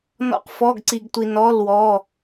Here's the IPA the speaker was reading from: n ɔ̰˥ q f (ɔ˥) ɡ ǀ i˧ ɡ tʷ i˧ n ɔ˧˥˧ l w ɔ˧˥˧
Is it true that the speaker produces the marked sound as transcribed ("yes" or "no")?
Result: no